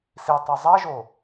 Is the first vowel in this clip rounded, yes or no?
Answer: no